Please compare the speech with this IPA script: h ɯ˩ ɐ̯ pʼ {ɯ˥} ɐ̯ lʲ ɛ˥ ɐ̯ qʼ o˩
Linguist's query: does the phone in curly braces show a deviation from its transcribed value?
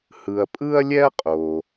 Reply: no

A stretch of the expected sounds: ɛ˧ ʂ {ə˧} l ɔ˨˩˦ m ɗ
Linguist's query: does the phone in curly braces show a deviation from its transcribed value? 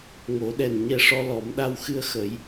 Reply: yes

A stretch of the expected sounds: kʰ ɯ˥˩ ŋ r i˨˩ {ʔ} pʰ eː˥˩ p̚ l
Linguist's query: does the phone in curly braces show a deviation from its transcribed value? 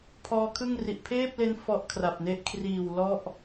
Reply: no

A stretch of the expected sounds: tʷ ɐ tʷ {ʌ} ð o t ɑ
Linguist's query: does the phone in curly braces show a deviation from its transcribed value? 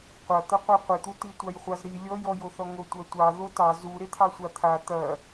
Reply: yes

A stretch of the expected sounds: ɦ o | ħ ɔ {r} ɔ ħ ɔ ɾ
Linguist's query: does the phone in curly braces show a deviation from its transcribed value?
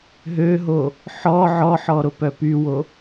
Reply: yes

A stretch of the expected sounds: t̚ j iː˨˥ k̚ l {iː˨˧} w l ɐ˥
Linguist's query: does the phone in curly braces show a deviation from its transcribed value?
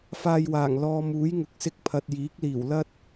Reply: yes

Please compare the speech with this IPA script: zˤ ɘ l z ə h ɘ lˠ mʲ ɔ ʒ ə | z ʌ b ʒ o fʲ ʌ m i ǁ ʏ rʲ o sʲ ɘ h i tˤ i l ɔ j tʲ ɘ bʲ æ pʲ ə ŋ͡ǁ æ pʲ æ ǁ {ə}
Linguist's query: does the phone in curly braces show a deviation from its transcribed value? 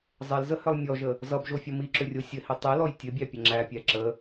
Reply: no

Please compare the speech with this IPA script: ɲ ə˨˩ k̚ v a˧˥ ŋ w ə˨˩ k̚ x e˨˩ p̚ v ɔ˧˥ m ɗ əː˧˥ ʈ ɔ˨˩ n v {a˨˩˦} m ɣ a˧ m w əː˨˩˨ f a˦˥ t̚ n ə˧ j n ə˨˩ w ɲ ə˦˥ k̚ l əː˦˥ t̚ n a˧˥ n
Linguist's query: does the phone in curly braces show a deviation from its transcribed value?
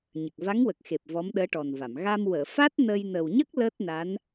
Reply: yes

